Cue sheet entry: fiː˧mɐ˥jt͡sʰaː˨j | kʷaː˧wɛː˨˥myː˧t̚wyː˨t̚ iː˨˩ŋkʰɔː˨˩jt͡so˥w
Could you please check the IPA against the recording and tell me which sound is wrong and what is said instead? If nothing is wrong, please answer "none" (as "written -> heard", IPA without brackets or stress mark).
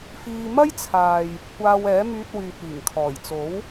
o˥ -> o˨˥